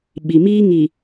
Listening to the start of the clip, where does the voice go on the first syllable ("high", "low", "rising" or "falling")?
low